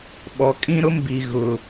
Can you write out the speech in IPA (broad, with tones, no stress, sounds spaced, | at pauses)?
ɓ ɔ˨ kʼ ĩ˦ ɾ ʊ˦ m b i˨ ɣ ʊ˨